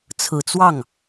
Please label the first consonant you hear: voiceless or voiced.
voiceless